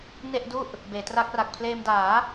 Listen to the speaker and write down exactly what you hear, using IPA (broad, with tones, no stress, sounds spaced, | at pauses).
n e˥˩ ʔ d u˥˩ ʔ | b eː˩˦ t r a˦˥ k̚ r a˨˩ k̚ pʰ l eː˧ m d aː˩˦